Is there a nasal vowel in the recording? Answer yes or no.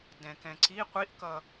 yes